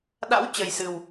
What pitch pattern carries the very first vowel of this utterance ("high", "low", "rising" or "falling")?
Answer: rising